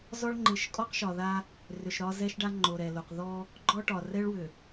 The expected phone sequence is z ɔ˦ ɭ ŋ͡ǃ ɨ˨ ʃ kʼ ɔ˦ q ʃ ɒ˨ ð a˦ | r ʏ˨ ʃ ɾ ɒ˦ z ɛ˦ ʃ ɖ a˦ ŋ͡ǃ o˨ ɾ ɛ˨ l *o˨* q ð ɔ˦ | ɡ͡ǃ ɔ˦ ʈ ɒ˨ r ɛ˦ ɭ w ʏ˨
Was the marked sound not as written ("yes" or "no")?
no